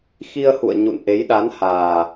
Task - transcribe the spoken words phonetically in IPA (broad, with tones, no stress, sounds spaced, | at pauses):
x i˧ ə̯ h ṵ˧˨ ə̯ ɲ ṵ˧˨ n ʔ e˨˦ j ɗ a˨˦ n h aː˨˩